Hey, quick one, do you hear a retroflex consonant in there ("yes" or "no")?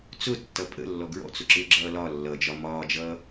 no